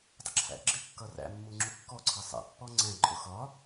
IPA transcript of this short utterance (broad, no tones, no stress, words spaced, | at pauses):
dˤəǁʰæ̰ɡ͡ǁɪkːʌ ræ̰mːu ŋ͡ǁukːɔǀʰɜ sˤɛ̰pːɔ ŋ͡ǀɛ̃ǃʼʊ xɒ